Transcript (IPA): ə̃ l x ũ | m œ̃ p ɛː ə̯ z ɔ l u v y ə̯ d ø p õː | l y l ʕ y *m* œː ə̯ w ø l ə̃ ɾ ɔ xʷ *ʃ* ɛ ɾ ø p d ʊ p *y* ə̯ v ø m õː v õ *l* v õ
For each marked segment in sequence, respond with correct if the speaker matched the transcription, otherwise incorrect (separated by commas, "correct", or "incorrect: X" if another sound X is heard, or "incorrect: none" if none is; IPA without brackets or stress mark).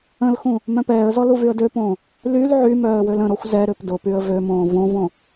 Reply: correct, incorrect: z, correct, incorrect: none